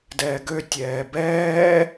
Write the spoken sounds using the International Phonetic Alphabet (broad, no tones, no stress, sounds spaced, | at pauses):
d ɛː ɡ ø tʲ ɛː b ɛː